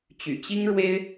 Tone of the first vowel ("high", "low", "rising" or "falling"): low